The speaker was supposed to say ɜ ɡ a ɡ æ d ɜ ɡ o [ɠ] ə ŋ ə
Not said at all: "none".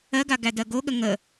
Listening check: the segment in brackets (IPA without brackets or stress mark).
ɠ